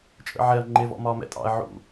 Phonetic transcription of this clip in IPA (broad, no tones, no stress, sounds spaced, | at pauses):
t͡ʃʼ ə̰ ʕ ɛ ɐ̯ ŋ͡ǃ ɪ v ɔ̰ m ɒː m ɛ̰ tʼ ɑ̰ ɐ̯ ʕ ṵ